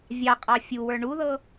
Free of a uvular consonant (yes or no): no